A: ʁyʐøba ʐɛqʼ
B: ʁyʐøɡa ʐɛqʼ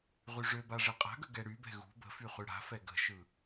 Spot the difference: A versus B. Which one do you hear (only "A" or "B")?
A